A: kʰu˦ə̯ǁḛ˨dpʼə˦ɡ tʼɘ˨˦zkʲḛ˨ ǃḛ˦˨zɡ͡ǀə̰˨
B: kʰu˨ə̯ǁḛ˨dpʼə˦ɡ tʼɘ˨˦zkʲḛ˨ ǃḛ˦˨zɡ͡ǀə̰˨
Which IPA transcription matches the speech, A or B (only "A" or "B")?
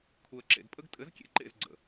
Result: B